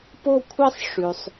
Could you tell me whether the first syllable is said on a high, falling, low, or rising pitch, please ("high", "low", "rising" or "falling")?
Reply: falling